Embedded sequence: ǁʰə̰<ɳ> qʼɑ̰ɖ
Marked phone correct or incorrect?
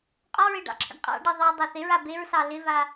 correct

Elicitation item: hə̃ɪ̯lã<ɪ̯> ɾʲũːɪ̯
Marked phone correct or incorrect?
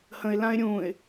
correct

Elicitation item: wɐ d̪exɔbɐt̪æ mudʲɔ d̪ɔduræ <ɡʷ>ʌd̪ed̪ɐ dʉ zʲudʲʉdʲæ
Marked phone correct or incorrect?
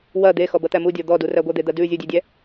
correct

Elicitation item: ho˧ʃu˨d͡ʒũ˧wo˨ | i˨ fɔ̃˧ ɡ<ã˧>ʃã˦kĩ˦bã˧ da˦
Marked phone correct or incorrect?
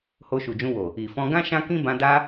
incorrect: ã˦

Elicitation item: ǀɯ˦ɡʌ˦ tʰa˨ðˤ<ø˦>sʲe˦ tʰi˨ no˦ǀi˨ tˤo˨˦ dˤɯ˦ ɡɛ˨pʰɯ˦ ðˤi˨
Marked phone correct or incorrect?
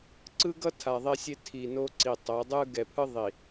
incorrect: e˦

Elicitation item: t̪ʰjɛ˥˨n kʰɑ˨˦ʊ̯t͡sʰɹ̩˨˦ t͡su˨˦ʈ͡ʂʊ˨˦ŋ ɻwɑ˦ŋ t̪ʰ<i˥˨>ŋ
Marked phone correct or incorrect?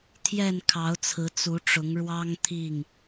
correct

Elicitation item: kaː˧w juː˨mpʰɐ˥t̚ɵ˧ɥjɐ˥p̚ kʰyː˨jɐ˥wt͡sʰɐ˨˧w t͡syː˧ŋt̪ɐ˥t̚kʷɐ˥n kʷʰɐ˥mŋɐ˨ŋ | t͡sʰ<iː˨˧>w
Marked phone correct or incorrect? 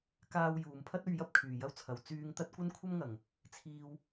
incorrect: iː˥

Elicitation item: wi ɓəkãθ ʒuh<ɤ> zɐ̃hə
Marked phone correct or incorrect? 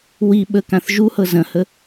correct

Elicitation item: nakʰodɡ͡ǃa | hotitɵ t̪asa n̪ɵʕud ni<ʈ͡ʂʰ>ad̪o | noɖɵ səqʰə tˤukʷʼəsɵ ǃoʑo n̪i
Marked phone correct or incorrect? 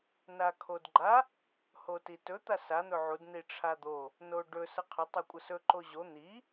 correct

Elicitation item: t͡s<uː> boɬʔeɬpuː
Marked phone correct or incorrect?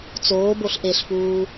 incorrect: oː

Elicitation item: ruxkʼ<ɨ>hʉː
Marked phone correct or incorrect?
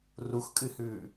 correct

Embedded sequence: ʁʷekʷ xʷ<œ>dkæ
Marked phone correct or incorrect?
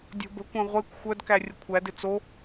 correct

